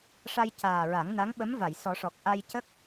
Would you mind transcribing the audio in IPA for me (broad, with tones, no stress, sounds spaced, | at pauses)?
ʂ a˧ j c aː˨˩ ɹ a˨˩˦ ŋ n a˧˥ ŋ ɓ ə˧˥ m v a˨˩˨ j s ɔ˨˩˦ ʂ ɔ˨˩ k̚ ʔ a˧ j c ə˦˥ k̚